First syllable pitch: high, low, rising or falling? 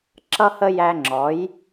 high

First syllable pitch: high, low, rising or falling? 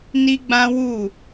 high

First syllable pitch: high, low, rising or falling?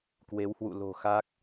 rising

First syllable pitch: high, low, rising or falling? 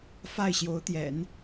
falling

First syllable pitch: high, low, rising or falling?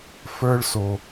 high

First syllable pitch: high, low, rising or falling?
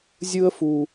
high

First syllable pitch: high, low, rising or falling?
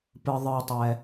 low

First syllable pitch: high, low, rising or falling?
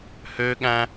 high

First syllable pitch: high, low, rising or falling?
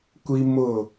high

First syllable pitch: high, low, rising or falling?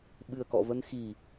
low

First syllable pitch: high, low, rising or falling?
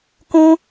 high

